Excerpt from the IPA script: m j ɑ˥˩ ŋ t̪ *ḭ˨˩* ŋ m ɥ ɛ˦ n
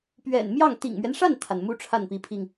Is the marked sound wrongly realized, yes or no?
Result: no